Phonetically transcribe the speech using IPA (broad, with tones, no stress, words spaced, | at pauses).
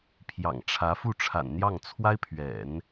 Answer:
pʰjɑ̰˨˩ŋʈ͡ʂʰä˧˥ fu˥˩ʈ͡ʂʰa̰˨˩nn̪jɑ˥˩ŋ t͡sʰwa˥ɪ̯pʰɥɛ̰˨˩˦n